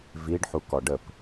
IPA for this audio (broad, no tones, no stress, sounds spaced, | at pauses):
v i ɖ ħ u k ɔ ɖ ə p